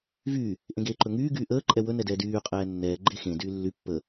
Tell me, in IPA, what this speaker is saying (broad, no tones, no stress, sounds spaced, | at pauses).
v y | ʔ ẽ ɡ eː ǃ ɵ ŋ yː ɡ yː ʔ əː ǃʼ ɛ w ɵ n ɛ d ɛː d yː qʼ ɛː nː ɛː ɡ͡ǃ e x ẽ d yː lː y pː ə